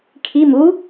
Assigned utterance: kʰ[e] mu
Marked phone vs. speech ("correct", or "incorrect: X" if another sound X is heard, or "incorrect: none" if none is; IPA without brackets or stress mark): incorrect: i